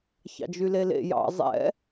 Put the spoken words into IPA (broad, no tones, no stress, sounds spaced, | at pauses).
ç ɑ̰ d͡ʒ y l e l ḛ j ɑ̰ zˤ ɛ̰